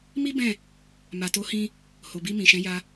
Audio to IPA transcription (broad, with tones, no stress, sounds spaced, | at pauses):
m i˦ b ɛ̃˦˨ | m a˨ t o˨˦ h ĩ˧ | h o˨ b i˧ m ĩ˨ ʃ ɛ̃˨˦ j a˧